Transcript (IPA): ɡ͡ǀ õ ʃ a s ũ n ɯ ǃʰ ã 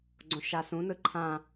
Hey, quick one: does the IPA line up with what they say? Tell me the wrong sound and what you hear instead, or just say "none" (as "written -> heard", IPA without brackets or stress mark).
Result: none